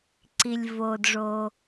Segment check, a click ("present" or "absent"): present